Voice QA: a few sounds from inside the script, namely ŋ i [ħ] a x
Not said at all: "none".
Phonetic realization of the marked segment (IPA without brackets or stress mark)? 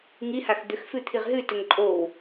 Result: h